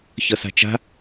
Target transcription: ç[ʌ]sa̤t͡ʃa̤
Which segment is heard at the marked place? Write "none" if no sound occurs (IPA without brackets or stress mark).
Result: ʌ